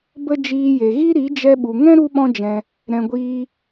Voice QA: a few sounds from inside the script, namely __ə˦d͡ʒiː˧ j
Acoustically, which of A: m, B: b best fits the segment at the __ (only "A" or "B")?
B